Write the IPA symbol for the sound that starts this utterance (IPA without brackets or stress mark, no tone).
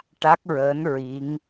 ʈ